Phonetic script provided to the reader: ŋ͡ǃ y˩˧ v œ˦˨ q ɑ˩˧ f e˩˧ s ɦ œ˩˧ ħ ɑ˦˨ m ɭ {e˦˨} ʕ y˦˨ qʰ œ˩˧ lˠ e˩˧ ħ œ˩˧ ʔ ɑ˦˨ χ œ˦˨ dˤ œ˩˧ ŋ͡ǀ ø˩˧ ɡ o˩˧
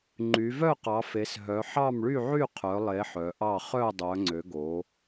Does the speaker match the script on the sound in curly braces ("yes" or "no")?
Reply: no